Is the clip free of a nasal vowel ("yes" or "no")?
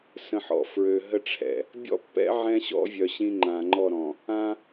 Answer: no